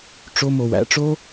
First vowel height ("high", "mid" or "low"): mid